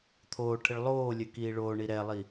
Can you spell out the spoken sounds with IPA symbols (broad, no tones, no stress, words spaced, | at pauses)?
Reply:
t̪ʰoːʈʰɘɭ lˠoːlʲœ kiːɭoːɳi ɾɛlˠi